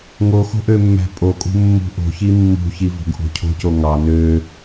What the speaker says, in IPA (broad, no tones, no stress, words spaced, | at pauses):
ŋoxo̤ ʔømːæ̤pʼokʼṳ mːṳʔo̤çi mːṳçi vo̤ɡʔo̤cʰo̤co ŋɑ nø